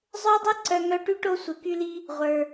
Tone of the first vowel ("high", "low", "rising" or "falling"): high